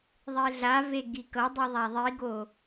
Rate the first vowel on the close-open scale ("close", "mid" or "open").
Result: mid